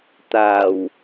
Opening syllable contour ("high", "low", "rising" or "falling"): low